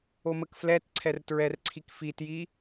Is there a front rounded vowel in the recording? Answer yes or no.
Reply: no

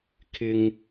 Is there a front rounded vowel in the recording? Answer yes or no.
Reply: no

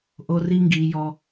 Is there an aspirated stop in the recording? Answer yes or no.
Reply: no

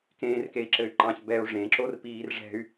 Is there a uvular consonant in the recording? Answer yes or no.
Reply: no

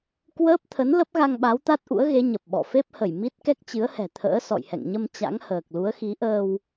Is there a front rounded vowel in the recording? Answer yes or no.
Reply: no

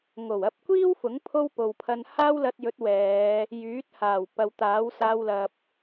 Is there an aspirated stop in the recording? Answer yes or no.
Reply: yes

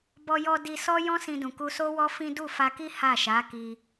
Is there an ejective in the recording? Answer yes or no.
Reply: no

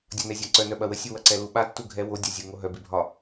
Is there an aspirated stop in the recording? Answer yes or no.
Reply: no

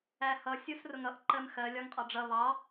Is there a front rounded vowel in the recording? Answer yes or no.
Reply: no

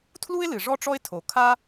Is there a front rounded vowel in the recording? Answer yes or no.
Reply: no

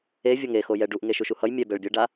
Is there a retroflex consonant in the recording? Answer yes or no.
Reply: yes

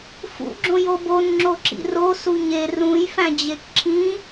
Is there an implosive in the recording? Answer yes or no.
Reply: no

